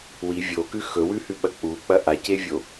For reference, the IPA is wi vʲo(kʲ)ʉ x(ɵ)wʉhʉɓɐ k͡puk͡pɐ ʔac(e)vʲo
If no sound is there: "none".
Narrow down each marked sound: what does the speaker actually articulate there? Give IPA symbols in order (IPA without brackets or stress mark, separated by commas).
k, ɵ, e